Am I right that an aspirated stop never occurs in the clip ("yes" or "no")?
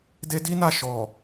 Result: yes